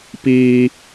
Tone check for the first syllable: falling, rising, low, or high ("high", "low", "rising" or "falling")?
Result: high